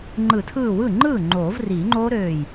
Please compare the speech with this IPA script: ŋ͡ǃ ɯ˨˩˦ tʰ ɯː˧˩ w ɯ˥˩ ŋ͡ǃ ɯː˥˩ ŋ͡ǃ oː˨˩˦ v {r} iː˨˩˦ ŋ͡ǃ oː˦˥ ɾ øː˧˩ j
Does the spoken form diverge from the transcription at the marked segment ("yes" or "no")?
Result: no